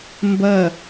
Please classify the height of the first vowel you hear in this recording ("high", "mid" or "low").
low